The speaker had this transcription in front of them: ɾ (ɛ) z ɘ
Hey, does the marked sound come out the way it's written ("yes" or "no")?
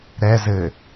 yes